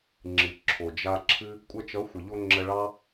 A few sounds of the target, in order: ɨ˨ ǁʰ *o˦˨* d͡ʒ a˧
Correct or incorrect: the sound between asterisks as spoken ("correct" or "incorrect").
incorrect